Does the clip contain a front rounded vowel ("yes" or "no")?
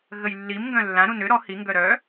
yes